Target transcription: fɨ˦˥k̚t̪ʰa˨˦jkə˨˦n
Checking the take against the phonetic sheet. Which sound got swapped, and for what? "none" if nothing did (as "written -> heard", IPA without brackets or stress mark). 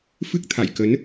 a˨˦ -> a̰˧˨